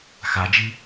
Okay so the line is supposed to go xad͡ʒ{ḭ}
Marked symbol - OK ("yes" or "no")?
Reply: no